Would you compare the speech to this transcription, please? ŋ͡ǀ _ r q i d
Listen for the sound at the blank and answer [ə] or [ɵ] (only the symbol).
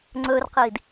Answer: ɵ